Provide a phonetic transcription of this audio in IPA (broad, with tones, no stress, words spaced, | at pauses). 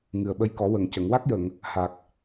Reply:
ŋɨ˨˩ə̯ɓə˧jkɔ˨˩˦ wə˨˩˨ŋ cə˨˩˨ŋ wa˦˥k̚jə˨˩˨ŋ | ha˨˩k̚